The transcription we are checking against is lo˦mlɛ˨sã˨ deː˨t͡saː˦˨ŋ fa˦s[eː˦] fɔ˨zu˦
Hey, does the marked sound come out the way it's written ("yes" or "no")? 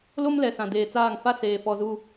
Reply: no